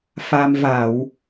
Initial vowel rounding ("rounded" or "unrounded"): unrounded